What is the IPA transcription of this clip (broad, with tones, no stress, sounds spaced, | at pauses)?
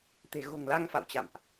t̪ e̤˨˩ ɣ o̤˨˩ ŋ l a˧ ŋ f a̰˧˨ w t͡ɕ a̰˧˨ m ʔ